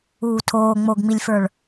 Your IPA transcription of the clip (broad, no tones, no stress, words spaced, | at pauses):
uːtʰoː ŋ͡moɡŋ͡milʲfə˞ɭ